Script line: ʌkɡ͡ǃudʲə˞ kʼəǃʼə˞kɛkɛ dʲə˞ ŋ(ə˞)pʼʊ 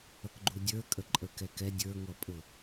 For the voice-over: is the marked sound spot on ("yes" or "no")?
no